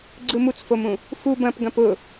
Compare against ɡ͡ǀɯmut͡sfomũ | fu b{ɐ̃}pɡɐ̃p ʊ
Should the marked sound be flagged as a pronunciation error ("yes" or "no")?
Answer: no